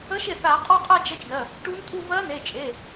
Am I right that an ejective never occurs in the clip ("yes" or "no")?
no